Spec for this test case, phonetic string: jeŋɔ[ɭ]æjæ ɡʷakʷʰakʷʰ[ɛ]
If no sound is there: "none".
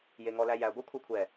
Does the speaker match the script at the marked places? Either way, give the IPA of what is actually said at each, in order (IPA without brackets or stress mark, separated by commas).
l, ɛ